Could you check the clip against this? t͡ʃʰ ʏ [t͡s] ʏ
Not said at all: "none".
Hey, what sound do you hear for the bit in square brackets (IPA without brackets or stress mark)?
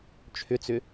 t͡s